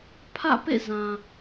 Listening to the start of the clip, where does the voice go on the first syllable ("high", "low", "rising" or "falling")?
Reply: falling